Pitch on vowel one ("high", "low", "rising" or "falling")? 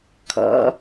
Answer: rising